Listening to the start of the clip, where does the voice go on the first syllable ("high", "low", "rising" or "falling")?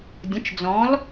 rising